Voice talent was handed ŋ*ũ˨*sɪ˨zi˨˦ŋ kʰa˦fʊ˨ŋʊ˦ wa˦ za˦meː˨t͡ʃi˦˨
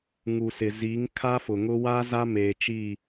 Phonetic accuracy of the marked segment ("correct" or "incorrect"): incorrect